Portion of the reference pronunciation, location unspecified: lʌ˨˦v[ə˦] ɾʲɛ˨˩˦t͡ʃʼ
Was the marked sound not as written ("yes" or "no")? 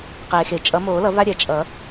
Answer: yes